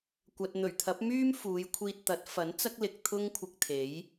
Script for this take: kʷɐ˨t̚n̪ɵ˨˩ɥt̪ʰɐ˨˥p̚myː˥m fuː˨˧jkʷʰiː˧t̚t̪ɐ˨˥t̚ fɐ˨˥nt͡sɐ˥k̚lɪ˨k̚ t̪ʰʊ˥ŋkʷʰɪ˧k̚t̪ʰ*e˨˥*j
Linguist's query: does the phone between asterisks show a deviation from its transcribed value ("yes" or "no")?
no